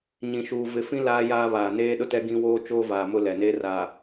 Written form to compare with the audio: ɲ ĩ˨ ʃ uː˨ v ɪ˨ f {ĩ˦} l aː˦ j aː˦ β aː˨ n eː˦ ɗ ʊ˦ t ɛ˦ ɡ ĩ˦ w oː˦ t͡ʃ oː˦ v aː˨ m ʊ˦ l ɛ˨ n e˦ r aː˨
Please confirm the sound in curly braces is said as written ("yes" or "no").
yes